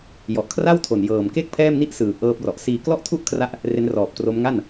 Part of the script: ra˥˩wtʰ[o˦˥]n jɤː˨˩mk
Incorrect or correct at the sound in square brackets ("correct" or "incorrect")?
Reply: incorrect